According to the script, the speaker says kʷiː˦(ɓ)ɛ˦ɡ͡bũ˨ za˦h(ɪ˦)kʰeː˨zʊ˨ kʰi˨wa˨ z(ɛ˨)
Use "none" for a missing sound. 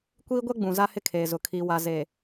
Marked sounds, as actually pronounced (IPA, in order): ɡʷ, ɪ˦, e˨

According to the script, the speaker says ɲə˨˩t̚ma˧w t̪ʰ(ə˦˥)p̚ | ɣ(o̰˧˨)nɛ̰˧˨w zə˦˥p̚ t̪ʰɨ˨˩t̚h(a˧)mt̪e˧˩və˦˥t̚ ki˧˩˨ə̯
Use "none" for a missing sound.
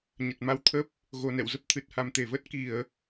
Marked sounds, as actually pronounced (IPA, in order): ə˦˥, o˨˩, a˨˩

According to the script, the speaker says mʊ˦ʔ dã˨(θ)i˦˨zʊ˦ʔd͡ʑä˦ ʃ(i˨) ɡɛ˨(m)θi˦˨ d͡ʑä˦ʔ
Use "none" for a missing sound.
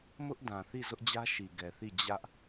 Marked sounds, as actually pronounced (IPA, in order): θ, i˨, none

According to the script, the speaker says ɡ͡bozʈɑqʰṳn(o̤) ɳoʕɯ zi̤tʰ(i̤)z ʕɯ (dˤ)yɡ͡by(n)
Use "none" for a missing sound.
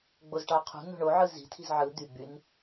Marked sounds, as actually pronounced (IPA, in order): o̤, i̤, d̪, n

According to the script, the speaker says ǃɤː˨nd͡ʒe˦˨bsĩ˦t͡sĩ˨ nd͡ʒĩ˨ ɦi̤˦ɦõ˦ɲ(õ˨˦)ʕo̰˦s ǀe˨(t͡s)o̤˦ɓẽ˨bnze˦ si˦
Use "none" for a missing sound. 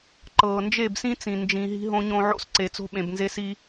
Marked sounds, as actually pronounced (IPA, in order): õ˦, t͡s

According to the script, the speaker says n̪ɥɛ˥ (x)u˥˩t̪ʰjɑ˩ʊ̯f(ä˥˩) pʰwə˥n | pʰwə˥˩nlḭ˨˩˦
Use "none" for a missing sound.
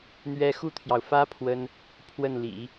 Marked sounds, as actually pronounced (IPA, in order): x, ä˥

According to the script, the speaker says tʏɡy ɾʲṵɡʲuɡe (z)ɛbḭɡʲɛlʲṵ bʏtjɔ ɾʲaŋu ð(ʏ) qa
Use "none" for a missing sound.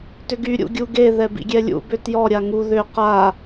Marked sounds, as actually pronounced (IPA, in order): ð, ʏ

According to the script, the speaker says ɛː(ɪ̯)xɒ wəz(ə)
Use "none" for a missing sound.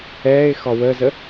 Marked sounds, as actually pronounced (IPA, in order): ɪ̯, ə

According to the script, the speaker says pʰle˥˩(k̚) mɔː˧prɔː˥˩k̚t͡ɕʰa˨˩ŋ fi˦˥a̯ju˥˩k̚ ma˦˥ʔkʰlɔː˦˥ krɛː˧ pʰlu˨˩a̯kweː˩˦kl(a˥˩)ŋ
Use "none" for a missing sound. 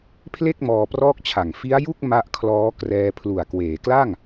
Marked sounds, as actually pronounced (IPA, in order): k̚, a˥˩

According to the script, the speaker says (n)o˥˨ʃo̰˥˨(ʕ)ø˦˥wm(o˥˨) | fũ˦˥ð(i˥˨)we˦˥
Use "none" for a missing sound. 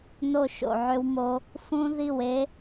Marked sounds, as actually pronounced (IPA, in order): n, ʕ, o˦˥, i˥˨

